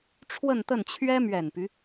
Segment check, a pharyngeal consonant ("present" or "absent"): absent